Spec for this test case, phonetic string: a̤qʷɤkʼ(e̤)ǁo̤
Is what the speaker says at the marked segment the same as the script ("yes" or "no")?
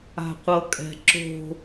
no